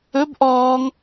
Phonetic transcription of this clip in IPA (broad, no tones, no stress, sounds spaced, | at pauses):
ɵ b ʔ ɔː ŋ